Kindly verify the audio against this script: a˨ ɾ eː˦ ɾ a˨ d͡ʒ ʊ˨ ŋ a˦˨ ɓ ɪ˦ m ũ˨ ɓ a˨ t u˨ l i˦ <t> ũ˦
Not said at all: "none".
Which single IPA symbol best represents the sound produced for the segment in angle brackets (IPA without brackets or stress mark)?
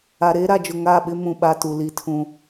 tʰ